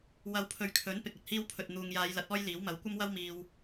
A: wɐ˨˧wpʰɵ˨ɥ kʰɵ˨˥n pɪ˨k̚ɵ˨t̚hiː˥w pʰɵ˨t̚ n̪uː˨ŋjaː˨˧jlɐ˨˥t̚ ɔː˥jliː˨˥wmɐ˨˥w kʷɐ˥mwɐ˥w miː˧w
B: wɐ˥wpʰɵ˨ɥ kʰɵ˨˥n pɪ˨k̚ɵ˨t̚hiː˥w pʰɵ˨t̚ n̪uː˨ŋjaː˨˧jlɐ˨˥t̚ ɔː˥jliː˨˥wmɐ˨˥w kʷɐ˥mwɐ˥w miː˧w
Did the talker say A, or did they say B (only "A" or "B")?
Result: A